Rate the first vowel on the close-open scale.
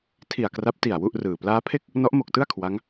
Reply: close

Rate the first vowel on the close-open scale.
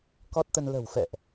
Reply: mid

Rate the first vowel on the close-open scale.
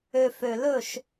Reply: mid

